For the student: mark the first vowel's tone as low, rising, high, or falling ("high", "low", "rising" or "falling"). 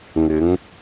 rising